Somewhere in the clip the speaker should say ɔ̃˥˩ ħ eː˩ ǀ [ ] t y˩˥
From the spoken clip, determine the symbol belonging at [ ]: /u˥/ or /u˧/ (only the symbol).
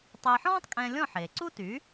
u˥